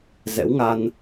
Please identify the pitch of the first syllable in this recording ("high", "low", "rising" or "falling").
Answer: rising